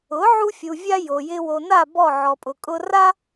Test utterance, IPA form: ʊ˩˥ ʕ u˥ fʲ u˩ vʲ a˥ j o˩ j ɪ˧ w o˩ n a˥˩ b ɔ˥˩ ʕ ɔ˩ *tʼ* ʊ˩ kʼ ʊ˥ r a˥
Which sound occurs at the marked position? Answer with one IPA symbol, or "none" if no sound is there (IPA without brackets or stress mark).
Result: pʼ